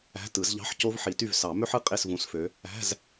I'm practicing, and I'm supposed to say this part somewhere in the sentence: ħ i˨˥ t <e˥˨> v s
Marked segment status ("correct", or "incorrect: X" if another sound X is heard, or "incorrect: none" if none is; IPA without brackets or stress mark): incorrect: y˥˨